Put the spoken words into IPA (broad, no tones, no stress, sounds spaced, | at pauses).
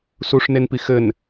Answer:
s u ʂ n e n p i x ɘ n